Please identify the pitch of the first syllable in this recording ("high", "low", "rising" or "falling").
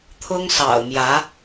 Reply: high